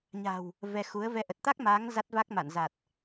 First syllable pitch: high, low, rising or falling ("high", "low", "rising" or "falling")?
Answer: low